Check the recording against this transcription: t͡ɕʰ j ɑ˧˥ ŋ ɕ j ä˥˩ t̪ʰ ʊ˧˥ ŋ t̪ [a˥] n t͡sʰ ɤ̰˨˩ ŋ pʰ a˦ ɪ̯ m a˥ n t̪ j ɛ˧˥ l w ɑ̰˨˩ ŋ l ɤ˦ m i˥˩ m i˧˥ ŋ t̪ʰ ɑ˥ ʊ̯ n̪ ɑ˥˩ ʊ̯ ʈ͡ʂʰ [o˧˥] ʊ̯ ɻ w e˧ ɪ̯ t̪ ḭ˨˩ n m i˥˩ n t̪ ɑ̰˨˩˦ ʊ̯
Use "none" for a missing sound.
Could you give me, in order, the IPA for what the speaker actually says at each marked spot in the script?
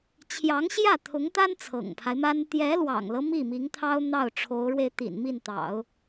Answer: a˥, o˧˥

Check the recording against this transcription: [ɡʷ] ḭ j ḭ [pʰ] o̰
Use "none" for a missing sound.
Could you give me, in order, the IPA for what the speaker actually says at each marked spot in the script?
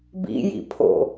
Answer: b, pʰ

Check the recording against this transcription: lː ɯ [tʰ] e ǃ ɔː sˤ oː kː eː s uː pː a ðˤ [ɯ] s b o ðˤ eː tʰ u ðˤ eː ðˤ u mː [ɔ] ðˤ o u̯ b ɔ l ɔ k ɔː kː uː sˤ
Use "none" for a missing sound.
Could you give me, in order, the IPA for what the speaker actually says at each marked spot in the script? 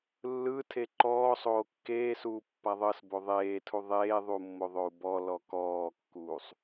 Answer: tʰ, ɤ, o

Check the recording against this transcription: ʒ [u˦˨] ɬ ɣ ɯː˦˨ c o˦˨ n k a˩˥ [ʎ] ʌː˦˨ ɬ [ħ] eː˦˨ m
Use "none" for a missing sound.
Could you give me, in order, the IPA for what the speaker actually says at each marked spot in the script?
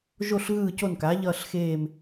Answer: o˦˨, ʎ, x

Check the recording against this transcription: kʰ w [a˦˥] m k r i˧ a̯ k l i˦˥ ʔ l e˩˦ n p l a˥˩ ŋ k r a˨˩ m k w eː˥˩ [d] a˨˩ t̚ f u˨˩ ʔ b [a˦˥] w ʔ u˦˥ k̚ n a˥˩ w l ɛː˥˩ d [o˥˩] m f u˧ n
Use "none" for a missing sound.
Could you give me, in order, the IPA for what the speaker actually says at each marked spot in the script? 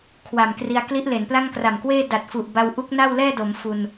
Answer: a˨˩, d, a˧, o˩˦

